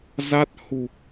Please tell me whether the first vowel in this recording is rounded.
no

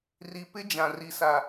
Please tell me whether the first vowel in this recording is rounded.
no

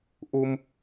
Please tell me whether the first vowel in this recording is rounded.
yes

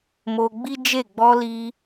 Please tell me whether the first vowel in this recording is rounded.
yes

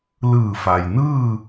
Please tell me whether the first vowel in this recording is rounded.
no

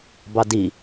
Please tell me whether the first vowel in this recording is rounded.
no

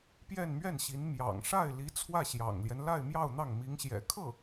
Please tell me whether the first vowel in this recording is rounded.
no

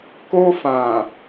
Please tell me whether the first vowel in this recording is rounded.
yes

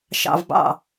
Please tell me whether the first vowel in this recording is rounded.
no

